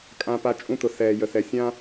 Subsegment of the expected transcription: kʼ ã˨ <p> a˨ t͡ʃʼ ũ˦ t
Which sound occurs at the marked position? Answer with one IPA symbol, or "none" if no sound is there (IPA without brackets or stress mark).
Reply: p